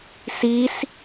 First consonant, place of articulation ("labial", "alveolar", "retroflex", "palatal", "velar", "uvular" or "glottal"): alveolar